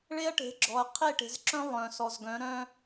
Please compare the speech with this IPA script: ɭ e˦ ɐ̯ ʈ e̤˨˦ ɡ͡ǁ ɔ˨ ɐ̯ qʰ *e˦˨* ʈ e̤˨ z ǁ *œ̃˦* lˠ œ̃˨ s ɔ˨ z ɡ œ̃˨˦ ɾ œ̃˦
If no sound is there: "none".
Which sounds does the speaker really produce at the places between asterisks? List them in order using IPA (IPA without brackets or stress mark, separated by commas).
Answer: e˦˨, œ̃˦